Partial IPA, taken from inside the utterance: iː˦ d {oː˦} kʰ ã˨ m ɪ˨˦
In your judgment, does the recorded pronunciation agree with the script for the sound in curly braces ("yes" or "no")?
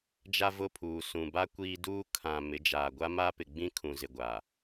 no